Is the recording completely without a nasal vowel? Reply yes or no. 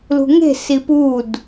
yes